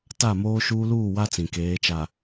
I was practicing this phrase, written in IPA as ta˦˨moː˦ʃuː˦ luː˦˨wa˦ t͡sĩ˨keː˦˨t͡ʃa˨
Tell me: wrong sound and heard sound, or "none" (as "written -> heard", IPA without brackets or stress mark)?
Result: eː˦˨ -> eː˨˦